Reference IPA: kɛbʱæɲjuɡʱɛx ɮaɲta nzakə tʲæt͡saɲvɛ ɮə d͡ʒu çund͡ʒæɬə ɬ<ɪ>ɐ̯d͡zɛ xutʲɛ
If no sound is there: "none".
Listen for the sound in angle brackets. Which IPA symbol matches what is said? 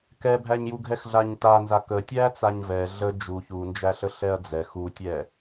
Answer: ɛ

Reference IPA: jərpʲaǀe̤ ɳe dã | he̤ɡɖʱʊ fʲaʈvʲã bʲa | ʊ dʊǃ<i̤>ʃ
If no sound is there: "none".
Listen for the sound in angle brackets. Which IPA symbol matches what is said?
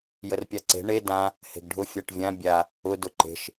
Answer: e̤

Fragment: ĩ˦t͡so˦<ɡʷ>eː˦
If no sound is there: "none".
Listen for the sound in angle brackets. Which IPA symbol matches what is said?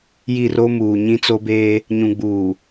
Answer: b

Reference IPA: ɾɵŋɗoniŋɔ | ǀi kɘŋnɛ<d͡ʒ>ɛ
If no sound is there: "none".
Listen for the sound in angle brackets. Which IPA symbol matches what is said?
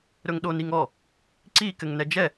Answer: d͡ʒ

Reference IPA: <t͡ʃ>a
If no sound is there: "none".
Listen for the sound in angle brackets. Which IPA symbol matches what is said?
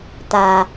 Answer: t̪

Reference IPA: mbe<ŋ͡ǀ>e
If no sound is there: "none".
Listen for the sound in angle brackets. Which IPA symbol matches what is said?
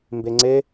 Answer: ŋ͡ǀ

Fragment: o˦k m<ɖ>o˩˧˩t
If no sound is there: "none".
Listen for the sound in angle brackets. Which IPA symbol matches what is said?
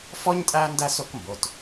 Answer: b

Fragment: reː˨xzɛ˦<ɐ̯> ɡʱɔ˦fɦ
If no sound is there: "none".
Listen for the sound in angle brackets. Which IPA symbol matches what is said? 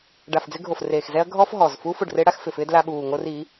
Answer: ɐ̯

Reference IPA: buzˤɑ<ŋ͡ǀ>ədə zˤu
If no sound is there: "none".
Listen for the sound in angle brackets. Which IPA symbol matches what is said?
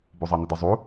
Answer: n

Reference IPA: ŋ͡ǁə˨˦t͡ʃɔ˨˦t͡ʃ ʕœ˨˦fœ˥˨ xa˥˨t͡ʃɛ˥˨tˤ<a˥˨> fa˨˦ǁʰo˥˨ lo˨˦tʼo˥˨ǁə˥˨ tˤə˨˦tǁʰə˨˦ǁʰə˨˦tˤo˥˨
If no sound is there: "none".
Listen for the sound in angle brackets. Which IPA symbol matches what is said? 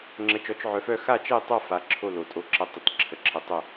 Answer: a˥˨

